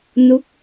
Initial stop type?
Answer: plain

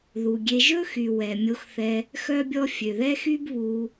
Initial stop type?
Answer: plain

